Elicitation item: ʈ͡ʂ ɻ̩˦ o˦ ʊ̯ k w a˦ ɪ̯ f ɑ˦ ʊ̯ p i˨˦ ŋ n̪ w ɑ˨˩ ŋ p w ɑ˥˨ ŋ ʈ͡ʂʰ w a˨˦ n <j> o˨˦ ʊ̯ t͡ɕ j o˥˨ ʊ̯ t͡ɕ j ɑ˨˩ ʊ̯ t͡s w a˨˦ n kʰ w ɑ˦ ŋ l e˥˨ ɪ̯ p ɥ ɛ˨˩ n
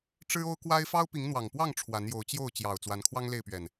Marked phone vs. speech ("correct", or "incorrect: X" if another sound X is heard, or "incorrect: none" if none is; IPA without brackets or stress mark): correct